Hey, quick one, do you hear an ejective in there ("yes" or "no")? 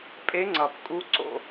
yes